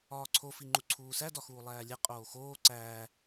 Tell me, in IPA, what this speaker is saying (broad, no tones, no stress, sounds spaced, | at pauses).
ɒː ǀʰ o f i ŋ͡ǃ u ǀʰ uː s æ d ɒ x uː lˠ æː lʲ e qʼ oː x oː ǀ æː